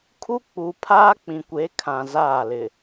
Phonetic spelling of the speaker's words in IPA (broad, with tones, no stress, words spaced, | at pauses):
kʰu˦ k͡pu˨pʰaː˦k͡pĩ˨kʷe˨˦ kʰã˨zaː˦˨lɪ˨